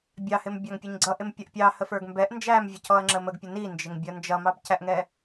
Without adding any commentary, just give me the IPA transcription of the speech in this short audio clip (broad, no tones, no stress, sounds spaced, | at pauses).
bʲ ɑ h ɪ m bʲ ɑ ŋ pʲ ə ɲ ɡ͡ǀ ʌ ʔ ɪ m pʲ ʌ ʔ pʲ ɑ h ə f ə˞ ɡ m b ɛ ʔ n d͡ʒ æ m vʲ ə c ɔ ɐ̯ ŋ͡ǁ ə m ə ɡ pʲ ə n i n d͡ʒ ɪ ŋ bʲ ʌ n d͡ʒ ʌ m ɑ b c æ ʔ ŋ ɛ